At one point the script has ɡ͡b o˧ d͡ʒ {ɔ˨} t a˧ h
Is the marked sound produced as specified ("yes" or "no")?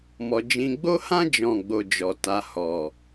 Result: yes